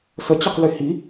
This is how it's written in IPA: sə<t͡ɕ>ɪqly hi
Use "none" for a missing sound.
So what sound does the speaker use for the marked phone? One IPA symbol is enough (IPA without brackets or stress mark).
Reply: t͡ɕ